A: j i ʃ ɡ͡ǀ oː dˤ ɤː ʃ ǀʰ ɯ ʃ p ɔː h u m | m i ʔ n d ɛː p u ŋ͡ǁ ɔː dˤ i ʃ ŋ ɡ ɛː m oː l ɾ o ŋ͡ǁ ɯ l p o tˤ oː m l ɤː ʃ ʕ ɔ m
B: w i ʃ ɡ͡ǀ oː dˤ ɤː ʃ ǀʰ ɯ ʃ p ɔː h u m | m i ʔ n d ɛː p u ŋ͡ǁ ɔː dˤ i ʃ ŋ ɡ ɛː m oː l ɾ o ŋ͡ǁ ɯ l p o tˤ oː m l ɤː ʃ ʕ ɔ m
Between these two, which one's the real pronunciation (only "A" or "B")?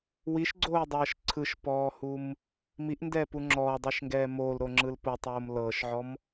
B